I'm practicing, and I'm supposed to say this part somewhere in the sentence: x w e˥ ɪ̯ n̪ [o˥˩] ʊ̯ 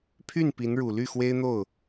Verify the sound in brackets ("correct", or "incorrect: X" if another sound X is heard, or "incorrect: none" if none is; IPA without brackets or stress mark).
correct